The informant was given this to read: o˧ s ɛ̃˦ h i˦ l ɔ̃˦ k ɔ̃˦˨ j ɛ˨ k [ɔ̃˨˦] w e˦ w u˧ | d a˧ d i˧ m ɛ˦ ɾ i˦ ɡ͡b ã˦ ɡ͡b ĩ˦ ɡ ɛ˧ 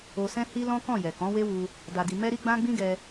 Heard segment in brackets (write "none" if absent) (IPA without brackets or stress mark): ɔ̃˨˦